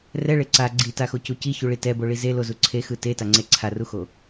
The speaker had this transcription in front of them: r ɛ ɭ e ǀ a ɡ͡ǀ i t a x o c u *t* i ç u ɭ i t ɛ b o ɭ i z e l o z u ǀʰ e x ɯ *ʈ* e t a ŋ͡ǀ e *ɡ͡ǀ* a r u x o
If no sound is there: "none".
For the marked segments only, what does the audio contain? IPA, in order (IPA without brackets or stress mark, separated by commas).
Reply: c, t, ǀʰ